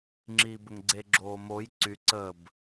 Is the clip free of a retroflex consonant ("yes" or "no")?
yes